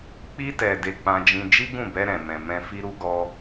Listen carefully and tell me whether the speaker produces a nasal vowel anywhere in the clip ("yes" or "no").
yes